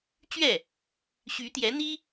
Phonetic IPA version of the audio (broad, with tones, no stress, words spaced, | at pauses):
t͡ɕɥɛ˥˩ | ɕy˧˥t̪jɛ˧˥n̪i˥